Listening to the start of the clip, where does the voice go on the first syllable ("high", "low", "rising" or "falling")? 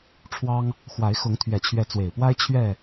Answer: high